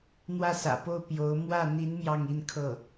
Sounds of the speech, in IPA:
n̪wä˥˩sä̰˨˩po˥˩ʊ̯ pjo˧˥ʊ̯ mwä˥˩ n̪i˧˥n mjɑ˥˧ŋi˥˧nkʰɤ˥˩

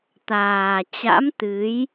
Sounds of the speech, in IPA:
t̪aː˨˩ t͡ɕa̰˧˥mt̪ɨ˨˦j

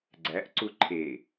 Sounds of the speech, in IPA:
ɡ͡ǀæʔǀu ǃʰe

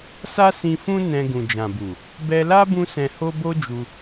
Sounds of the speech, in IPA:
sa˦sĩ˧fũ˦ nɛ̃˧ ɡũ˨d͡ʒã˨bu˨ | bɛ˧la˦ bũ˦sɛ̃˧ho˦ bo˦d͡ʒu˧

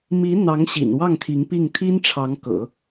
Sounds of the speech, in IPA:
mi˧˥ n̪ɑ˧˥ŋɕḭ˨˩n wɑ˥˩ŋt̪ʰi˧˥ŋpi˥˩ŋ t̪ʰi˥nʈ͡ʂʰɑ˧˥ŋkɤ̰˨˩˦

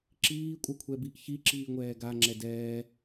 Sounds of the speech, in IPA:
ǁiːkʷʼœkʷʰɛbiʔ çiǁiːŋʷɛː ɡaŋ͡ǁɛ dɛː

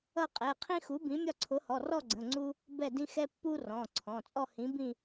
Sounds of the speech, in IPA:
ʌ˥˧qʼɛ˩˧˩ qʰĩ˥xu˨˥bĩ˨˥mʲɒ˥˧ ǀʰʊ˨˥hɔ˩˧˩rɔ˥˧ɡ͡ǀə̃˩˧˩ ŋ͡ǀu˥ | bɛ˥˧dĩ˥ xɛ˥pːu˥ rɔ̃˩˧˩ǀʰɔ̃˩˧˩ t͡sʼɔ˥˧hĩ˨˥bĩ˥˧

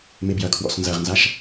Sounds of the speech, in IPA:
mebjɐkʰwɔ̰s nzɐʁnzaʃ

